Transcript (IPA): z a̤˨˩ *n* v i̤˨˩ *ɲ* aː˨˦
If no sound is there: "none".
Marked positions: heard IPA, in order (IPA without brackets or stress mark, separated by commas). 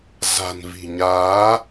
n, ɲ